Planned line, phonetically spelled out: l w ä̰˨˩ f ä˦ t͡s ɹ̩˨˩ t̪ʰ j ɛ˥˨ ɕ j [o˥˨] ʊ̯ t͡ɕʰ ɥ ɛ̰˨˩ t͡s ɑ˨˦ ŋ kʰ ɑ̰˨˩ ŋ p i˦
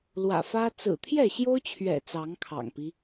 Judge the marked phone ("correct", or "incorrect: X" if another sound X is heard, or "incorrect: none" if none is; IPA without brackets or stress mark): incorrect: o˦